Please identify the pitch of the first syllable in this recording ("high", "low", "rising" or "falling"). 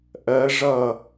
rising